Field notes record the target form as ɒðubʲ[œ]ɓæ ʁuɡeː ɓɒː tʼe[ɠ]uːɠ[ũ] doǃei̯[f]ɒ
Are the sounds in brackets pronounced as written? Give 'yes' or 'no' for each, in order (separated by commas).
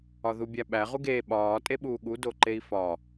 no, no, no, yes